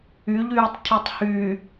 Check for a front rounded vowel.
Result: present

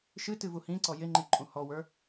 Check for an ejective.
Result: present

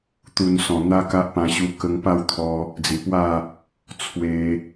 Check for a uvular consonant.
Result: absent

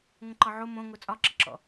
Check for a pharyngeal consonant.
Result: present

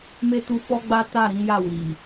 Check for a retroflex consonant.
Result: absent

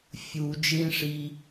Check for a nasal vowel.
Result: present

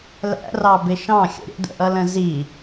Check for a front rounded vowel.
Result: absent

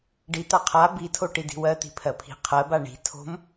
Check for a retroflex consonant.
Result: present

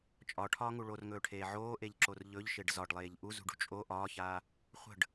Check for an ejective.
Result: present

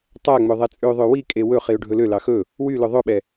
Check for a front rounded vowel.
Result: present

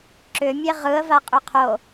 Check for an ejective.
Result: present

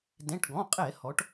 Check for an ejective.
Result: present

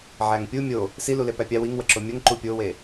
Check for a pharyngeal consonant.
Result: present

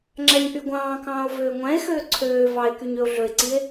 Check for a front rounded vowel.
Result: present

